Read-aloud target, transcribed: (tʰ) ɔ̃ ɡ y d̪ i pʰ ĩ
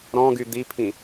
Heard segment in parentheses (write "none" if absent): ɾ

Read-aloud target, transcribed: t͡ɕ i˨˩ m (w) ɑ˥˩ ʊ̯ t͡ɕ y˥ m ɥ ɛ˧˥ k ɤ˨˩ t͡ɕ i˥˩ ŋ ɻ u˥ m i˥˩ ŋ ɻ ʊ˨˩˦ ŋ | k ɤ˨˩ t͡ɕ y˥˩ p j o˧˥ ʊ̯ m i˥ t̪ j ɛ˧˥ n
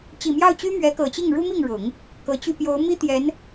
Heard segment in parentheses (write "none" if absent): j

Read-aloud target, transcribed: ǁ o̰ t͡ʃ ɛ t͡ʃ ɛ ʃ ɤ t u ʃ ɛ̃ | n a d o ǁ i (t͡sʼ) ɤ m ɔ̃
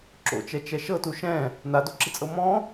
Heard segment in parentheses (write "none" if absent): t͡sʼ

